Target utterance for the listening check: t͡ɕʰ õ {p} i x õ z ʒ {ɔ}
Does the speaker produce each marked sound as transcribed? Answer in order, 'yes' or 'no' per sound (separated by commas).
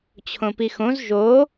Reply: yes, no